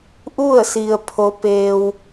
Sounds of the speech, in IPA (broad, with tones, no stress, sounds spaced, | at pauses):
ʔ u˥˨ ə̯ s i˩ ə̯ pʰ o˩˧ p eː˩ w